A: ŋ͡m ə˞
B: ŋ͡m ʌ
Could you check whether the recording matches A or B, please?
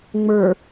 A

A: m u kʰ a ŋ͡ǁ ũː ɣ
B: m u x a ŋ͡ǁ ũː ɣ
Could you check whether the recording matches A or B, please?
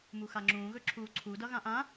B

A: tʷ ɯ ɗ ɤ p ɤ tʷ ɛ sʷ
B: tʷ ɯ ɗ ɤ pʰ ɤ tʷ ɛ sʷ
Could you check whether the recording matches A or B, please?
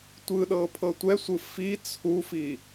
B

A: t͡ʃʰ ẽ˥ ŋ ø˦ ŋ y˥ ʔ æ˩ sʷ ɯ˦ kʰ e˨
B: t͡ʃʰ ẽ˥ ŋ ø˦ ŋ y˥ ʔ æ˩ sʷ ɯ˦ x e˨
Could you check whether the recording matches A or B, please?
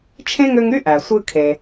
A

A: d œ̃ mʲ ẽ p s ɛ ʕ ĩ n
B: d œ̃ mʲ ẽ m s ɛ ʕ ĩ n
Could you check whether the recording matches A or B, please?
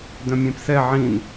A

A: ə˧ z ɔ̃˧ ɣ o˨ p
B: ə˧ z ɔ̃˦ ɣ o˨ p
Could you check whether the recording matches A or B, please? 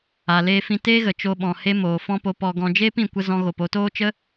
A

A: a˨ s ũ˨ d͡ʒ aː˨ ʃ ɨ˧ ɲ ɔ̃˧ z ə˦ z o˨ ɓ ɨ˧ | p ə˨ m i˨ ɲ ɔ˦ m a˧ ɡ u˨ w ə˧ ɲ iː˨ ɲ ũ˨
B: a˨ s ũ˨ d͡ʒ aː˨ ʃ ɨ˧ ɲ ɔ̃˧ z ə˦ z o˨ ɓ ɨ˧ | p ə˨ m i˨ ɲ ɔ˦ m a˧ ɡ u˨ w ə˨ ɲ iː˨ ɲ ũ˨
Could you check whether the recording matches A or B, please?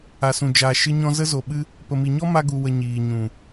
B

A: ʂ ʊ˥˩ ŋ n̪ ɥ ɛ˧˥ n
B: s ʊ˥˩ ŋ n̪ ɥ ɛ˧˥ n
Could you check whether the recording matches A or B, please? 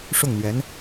A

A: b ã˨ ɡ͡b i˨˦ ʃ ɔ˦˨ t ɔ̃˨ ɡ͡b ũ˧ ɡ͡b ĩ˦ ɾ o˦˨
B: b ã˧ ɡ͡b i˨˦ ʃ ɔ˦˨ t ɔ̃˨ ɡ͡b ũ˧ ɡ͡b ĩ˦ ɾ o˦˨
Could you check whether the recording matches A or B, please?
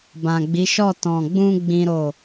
A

